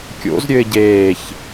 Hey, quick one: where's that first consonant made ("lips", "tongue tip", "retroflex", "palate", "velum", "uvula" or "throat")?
velum